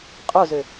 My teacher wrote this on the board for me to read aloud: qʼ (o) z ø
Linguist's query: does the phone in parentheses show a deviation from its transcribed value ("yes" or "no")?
no